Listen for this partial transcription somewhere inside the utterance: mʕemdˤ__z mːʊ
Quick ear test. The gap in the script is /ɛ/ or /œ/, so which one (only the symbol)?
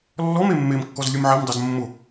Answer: ɛ